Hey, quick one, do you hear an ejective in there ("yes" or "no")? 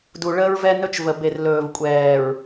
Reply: yes